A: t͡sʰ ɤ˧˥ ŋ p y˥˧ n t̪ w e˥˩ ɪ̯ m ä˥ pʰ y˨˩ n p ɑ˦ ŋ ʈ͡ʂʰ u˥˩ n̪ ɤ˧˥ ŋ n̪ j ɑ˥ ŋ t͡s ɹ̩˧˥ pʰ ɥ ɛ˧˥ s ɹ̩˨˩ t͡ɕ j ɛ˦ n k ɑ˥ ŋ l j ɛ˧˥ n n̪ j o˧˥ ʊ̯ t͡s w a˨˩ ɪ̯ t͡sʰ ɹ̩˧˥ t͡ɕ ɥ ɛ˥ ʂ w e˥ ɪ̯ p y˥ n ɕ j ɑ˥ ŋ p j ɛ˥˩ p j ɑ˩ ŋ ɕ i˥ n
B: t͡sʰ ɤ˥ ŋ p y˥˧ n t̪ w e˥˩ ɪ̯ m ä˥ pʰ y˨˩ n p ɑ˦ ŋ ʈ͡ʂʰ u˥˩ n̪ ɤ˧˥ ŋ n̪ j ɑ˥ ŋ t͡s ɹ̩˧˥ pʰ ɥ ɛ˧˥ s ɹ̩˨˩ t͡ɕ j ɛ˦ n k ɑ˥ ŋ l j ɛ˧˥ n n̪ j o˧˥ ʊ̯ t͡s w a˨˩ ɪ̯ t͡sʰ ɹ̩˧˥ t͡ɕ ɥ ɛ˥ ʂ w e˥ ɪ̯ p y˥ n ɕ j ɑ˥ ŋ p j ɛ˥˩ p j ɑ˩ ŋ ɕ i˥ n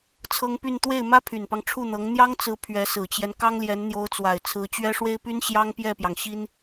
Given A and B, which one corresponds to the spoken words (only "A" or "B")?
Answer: B